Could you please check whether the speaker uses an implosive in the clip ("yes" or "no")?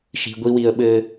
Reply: yes